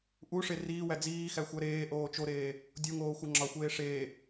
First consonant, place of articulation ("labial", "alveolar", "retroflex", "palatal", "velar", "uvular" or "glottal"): glottal